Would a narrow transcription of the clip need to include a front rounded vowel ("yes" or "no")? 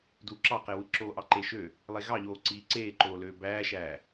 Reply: yes